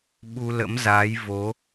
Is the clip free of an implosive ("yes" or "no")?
no